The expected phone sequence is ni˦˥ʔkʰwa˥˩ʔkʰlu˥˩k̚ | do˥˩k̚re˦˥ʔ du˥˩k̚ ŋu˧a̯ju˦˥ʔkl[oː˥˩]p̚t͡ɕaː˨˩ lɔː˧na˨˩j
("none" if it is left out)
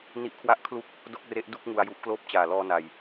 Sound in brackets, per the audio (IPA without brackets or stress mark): oː˥˩